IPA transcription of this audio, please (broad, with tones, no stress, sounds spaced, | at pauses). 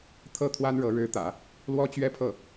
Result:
t̪ʰ ɤ˥˩ t̪ʰ w a˥ n ɻ ɤ˧˥ ɻ ɻ̩˧˥ t̪ ä̰˨˩˦ | l w ɔ˥ t͡ɕ ɥ ɛ˥ pʰ ɤ˥˩